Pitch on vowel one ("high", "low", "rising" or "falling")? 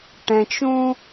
low